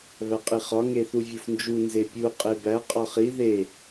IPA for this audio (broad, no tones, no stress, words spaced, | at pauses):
βæqʼiχɒ ŋeθuvʲufnd͡ʒu nzepʲu qʼebæ qʼɒχi ðe